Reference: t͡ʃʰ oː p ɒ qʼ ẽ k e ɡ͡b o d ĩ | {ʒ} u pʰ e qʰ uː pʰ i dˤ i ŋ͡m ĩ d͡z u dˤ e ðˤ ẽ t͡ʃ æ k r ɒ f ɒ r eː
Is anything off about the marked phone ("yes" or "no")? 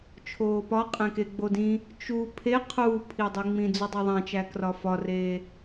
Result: yes